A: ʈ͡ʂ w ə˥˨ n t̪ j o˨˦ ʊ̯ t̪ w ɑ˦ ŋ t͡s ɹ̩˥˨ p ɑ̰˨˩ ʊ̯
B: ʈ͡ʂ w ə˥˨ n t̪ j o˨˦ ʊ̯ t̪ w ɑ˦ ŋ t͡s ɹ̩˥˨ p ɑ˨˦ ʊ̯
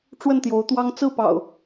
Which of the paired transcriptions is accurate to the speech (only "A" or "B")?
A